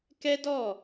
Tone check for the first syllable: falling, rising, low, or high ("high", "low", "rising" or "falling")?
high